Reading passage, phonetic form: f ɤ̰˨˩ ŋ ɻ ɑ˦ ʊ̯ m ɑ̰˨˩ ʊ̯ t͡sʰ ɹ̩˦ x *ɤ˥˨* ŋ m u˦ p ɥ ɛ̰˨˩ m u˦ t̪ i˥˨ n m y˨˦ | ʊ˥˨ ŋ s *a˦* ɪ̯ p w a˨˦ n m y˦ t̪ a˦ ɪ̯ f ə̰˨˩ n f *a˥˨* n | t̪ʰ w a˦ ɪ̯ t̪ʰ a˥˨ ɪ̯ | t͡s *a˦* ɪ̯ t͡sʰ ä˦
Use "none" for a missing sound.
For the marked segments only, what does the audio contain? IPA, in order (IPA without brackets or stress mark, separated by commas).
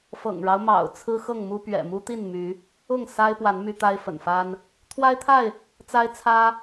ɤ˥˨, a˦, a˦, a˦